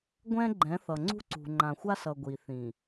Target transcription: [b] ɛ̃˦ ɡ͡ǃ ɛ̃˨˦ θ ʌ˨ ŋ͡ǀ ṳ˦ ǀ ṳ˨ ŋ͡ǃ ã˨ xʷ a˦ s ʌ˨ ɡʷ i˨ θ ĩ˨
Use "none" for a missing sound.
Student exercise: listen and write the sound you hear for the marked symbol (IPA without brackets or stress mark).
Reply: ɡʷ